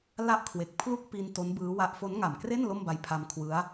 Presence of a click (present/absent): absent